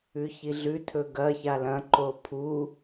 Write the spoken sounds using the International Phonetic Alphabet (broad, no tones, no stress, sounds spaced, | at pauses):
ʉ ç i ɮ ʉ tʰ ɵ ɡ ɐ ç a l ɐ̃ ǃ o pʰ u